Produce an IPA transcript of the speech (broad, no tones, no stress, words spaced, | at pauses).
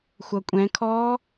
xʷʌkʷʼɛ̃kʰɔː